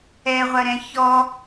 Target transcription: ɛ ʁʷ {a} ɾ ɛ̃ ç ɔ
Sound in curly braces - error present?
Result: yes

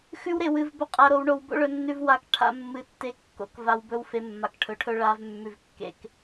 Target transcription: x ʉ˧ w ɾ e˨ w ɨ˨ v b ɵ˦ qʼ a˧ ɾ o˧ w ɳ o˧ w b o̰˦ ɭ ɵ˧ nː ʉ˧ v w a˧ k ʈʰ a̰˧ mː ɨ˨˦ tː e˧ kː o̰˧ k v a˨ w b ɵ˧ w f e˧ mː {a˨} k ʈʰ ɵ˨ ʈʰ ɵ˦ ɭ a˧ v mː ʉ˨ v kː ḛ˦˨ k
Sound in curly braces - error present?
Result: no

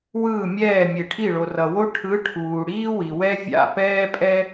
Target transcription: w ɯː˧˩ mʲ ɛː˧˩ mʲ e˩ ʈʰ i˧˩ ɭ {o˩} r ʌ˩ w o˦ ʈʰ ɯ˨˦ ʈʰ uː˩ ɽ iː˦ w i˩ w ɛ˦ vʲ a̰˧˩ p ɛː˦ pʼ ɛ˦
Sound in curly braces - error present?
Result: no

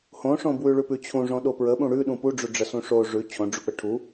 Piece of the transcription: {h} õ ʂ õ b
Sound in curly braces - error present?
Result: no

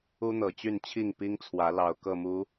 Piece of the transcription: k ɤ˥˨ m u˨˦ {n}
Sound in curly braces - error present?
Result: yes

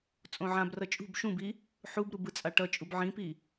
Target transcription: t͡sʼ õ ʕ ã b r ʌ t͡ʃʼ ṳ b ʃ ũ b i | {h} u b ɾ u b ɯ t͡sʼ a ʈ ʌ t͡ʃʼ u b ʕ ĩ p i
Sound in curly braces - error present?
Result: yes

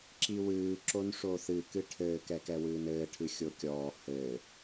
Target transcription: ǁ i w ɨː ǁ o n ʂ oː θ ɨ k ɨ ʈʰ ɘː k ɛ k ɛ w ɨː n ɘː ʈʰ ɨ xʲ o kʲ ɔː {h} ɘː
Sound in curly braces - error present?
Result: no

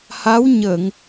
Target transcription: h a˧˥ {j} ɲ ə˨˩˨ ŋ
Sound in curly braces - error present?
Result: yes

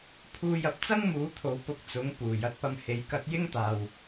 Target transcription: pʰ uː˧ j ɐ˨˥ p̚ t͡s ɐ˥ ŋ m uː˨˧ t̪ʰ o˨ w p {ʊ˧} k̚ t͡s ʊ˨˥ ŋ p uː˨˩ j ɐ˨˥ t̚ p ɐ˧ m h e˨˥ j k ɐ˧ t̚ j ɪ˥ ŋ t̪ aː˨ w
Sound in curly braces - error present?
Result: no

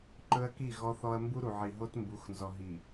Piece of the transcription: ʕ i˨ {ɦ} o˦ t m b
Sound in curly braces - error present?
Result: no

